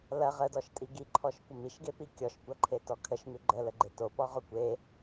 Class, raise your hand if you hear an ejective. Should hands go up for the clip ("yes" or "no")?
yes